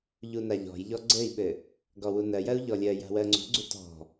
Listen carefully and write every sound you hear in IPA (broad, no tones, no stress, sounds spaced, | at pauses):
ʎ u n a ʎ ɔ̤ j ʎ ɔ ɡ͡ǀ ɘ i̯ ɓ ɘ | ɡ ɔ w u n ɜ j ɜ u̯ ʎ ɔ lʲ ɜ j a̤ w ɜ ŋ͡ǀ ṳ ɡ͡ǀ u t ɔ̤